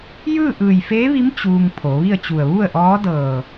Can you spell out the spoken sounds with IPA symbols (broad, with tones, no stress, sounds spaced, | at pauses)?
j ɯː˥˨ ʔ ɯː˧˩ j f eː˧˥ ʋ i˧˥ m t͡ɕ uː˧ ŋ pʰ o˩˧ ʋ i˥˨ ə̯ t͡ɕ u˧˩ ə̯ ʋ u˥˨ ə̯ ʔ ɔː˧˥ d ɤː˧˩